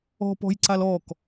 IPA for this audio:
ɔ̤ p ɔ̤ j ǀ a l ɔ k

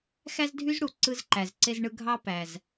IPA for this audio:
x æ˥ z dʱ y˥ z ɽ u˩ ǀ ɯ˧ z ǃ æ˩ z ǀ e˧ z ɳ ɯ˧ ɡʱ ɑ˥ p æ˩ z

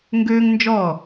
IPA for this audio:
ŋ ɡ øː˥ ŋ n d͡ʒ ɔ˥˩

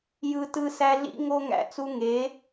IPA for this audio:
j ɯ˦ t ɯ˦ s æ˦ ɮ ḭ˦ ŋ o˦ ŋ æ̰˧ t͡s u˧ ŋ e˨˦

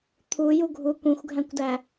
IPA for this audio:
t̪ʰ u j u ɡʱ u kʷ ĩ xʷ ɡʱ æ̃ kʷ d æ

